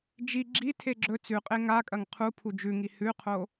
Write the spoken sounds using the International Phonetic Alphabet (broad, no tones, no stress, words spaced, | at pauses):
d͡ʒi ɡ͡ǁitʰe ɡ͡ǁɵ t͡sʉqʼe ŋakʼɐŋ qʰu pʰud͡ʒʉŋi hʉqʰo